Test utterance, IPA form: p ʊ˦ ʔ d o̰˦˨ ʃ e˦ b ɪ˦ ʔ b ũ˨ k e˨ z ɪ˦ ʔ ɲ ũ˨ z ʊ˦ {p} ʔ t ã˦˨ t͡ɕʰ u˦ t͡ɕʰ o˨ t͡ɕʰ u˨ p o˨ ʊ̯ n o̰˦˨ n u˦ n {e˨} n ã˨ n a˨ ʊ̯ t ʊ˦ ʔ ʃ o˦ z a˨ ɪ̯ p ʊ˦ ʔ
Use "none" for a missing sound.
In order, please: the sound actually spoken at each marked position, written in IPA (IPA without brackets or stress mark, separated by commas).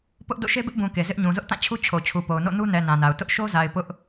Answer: none, ɛ˨